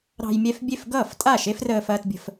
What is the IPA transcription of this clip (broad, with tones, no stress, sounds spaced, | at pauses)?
ɾ ɑ̤˥ j mʲ ɛ˥ f bʲ e˥˩ f ɡ ʌː˥˩ f tʼ a˥˩ ʃ e˥ f r əː˥ f ɐː˥ t bʲ ə̤˥ f